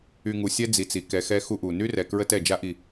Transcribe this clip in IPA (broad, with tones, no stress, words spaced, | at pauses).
y˨ ŋu˨sʲɛ˦ d͡zi˨t͡si˨ kɛ˨ xɛ˦xu˦ʔu˨ ny˦rɛ˨kɹə˦ tɛ˦˨d͡ʒa˦ʔi˨